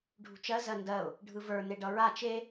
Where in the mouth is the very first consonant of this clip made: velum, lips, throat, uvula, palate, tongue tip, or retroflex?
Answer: retroflex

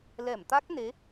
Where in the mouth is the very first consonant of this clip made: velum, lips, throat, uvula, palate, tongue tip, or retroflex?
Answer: tongue tip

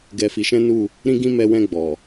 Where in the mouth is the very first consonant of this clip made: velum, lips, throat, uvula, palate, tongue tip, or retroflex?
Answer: velum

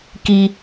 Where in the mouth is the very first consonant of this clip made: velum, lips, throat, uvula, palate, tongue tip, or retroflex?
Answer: velum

